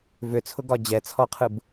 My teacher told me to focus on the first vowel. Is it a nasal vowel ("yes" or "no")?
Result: no